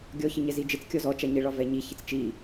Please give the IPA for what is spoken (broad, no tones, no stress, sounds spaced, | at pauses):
ɡʲ ɔ ç ə ɲ ɛ z i d͡ʒ ɪ t͡s kʲ ɔ z ɔ t͡ʃ a ɲ ɪ ɭ ɒ v ɛ ɲ i ç ɪ t͡s t͡ʃ i